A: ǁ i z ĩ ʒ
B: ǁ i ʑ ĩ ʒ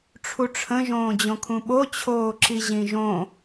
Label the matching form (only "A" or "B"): B